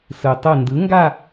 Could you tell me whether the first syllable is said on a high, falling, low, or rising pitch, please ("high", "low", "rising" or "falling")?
low